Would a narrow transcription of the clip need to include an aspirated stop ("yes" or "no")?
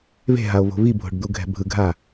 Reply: no